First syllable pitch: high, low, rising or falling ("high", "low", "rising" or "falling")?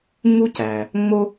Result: high